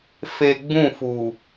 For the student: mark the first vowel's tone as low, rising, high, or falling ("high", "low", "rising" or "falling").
low